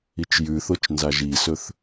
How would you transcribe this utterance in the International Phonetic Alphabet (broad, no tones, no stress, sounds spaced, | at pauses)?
i t͡ʃ j ʉ θ o t͡ʃ n z a ʒ i s ɵ θ